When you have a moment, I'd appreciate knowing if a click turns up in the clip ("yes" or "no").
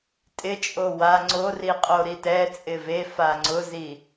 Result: yes